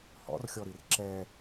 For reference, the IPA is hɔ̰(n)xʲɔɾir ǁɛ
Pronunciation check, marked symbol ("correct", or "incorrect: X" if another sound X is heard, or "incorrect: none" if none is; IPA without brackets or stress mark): incorrect: r